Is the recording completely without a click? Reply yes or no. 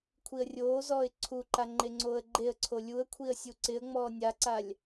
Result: no